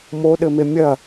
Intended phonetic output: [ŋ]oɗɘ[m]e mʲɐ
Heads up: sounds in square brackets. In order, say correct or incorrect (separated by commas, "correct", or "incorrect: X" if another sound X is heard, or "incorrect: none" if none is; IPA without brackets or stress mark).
incorrect: m, correct